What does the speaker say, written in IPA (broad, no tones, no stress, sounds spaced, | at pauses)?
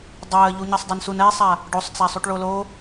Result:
dˤ əː ʎ u ɲ ʌ sˤ dˤ o n s u n ɛ sˤ a | ɖ o sˤ t͡s a sˤ u ʈ ɭ o l o